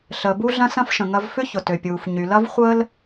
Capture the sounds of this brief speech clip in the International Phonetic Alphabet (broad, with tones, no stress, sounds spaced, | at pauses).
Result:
ɬ əː˩ b u˥ ɮ ɐ̃˥ s ɐ̃˥ f ʃ ə̃˩ ŋ ɐ˥ v f ʏ˥ ç ʊ˩ t ø˩ pʲ uː˩ f ɲ y˩ l ɐ˥ v χʷ əː˥ l